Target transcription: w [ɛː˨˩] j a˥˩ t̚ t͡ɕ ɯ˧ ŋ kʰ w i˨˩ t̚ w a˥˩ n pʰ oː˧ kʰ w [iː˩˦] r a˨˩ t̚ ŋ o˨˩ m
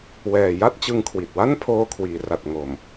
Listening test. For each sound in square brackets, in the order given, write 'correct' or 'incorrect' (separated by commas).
correct, correct